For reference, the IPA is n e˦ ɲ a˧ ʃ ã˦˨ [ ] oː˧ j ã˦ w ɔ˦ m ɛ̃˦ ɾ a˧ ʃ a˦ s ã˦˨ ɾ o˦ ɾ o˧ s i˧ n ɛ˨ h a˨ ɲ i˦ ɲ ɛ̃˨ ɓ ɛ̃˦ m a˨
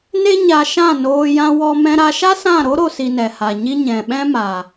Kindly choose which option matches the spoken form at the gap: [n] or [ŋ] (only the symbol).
n